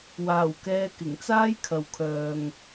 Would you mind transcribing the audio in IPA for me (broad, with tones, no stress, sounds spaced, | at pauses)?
w aː˨˩ w k ɛː˧ k ɪ˨˩ ŋ t͡s aː˥ j kʰ ɐ˨ w kʰ œː˨ ŋ